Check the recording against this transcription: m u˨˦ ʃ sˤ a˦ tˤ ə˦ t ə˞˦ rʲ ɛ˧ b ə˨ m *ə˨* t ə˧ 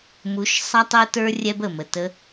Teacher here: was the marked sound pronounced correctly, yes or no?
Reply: yes